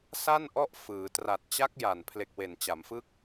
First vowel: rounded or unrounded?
unrounded